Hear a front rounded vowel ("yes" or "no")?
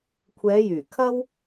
yes